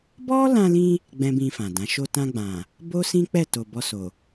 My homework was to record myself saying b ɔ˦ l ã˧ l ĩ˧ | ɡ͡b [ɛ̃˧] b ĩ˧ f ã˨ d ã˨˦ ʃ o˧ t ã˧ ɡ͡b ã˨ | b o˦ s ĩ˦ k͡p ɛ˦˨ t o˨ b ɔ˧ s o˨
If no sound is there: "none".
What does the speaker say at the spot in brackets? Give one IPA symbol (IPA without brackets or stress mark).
ɛ̃˦